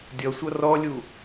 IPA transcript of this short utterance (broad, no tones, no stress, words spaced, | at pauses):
dʲʌsʷʌ rɔlʲu